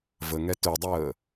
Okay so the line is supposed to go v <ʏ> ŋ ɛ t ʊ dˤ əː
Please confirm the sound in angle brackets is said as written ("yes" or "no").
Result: no